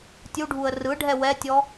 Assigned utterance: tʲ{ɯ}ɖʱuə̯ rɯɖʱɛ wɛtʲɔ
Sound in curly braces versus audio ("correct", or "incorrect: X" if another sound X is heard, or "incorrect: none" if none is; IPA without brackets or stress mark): incorrect: u